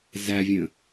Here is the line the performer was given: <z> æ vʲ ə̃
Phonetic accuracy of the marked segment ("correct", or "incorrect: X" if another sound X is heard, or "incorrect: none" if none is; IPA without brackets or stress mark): correct